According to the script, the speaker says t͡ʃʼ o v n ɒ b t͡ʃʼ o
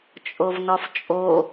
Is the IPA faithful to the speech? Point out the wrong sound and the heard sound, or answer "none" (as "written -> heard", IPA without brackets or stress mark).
b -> f